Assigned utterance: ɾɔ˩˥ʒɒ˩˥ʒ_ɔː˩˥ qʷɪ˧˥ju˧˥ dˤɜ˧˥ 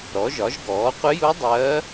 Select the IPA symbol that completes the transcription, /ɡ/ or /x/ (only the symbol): ɡ